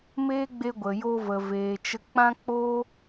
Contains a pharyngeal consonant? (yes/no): no